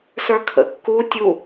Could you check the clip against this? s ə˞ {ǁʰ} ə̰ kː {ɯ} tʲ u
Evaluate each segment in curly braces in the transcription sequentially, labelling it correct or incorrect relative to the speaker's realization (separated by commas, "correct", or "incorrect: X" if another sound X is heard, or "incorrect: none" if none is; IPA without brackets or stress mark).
incorrect: kʰ, incorrect: u